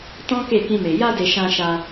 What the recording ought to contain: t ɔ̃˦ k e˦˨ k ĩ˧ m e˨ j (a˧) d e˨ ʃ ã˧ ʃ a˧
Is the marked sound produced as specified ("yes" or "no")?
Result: yes